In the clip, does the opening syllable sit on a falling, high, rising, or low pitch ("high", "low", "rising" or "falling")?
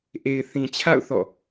low